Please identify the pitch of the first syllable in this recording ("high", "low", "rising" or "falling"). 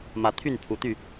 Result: rising